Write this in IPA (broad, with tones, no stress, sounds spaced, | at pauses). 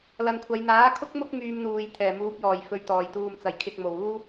l ɐ˨ n kʷʰ ɐ˨˧ j n̪ aː˨˥ kʰ ʊ˥ k̚ m ʊ˥ k̚ m yː˧ m n̪ uː˨ j t̪ʰ ɛː˨˩ m uː˨˥ p̚ j ɔː˨˩ j f ɵ˨ ɥ t̪ ɔː˨˩ j t̪ uː˨ m t͡s ɐ˨˩ j kʰ ɪ˨ k̚ m o˨˩ w uː˥